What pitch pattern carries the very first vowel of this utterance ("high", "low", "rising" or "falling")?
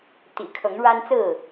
low